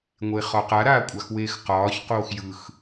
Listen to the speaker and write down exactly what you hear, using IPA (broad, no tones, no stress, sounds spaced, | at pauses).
ŋʷ e χ ɒ q a ɾ aː kʷʼ a x w eː x q ɒː ç q oː x j ɯ x